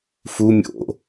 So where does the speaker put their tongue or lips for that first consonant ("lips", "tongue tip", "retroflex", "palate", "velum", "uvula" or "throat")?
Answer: lips